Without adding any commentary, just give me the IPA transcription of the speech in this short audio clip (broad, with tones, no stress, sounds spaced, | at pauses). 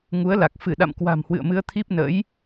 ŋ u˨˦ ə̯ l a˨˩ k̚ f ɨ˧˩ ɗ a̰˧˨ m k w a̤˨˩ m h w ɨ̰˧˨ ə̯ m ɨ˧ ə̯ t̪ʰ i˦˥ p̚ n ə̰ː˧˥ j